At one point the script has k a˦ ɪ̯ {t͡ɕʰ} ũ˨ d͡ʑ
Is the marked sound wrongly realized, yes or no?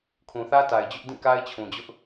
no